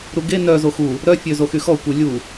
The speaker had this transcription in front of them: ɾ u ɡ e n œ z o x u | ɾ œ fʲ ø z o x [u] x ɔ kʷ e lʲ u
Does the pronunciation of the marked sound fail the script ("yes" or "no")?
yes